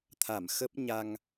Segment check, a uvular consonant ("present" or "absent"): absent